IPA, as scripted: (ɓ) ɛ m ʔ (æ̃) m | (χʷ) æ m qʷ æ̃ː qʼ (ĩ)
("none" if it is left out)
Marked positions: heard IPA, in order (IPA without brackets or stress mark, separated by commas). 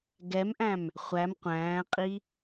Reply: ɡ, æ̃, χʷ, i